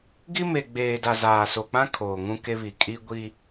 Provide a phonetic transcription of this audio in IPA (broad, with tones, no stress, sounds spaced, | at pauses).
ɡ i˦ m e˨ ɡ͡b eː˨ d a˨ z aː˨ s o˨ k͡p ã˦ kʰ oː˨ ŋ ũ˦ k e˦ β i˨ kʼ i˦ ɡʷ i˦